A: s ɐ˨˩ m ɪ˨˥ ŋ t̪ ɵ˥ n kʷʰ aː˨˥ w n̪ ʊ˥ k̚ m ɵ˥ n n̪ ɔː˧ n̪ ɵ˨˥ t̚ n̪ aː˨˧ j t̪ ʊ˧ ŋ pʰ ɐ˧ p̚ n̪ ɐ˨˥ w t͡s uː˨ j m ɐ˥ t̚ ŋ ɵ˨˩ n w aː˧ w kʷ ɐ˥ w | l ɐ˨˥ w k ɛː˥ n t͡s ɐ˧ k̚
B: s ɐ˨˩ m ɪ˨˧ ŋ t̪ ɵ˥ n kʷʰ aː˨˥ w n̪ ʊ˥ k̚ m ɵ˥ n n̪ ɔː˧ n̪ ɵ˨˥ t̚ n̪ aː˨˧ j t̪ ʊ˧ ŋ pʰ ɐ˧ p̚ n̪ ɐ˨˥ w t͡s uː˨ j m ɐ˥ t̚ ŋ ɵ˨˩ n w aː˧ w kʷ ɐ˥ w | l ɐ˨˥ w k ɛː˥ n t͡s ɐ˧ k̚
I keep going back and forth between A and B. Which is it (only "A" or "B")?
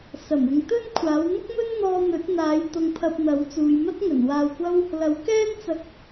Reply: B